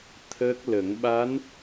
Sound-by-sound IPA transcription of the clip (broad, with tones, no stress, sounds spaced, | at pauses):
t̪ʰ əː˦˥ k̚ l ə˨˩˦ ŋ ɓ a˧˥ n